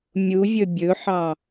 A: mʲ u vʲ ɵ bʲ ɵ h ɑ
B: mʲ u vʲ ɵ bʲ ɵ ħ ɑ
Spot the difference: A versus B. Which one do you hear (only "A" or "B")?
B